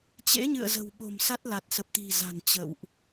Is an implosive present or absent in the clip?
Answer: present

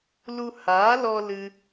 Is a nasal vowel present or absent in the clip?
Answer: absent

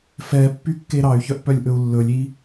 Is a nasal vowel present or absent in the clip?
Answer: absent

